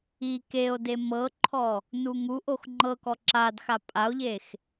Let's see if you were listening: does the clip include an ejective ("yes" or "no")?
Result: yes